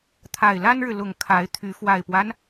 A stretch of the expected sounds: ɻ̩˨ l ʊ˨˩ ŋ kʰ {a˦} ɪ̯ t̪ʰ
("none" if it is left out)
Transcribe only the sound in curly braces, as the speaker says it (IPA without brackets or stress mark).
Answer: a˨˦